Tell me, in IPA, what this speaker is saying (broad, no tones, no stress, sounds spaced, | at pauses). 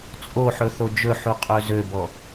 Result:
t͡sʼ o ħ ɵ θ o d͡ʒ ɵ ħ u qʼ ø z ø b ɔ